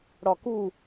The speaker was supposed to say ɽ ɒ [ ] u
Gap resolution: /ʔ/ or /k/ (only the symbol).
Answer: k